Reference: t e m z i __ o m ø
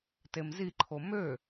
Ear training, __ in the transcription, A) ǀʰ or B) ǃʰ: B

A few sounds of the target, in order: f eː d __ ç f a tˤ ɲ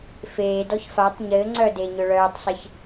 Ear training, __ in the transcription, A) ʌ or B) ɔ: B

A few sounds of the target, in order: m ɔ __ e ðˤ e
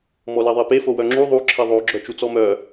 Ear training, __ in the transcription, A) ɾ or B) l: B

